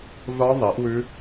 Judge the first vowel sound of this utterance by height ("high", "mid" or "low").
low